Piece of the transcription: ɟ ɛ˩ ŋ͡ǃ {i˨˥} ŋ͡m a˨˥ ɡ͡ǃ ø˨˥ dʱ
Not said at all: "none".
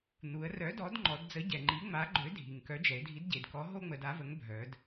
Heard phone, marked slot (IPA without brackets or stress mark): i˨˥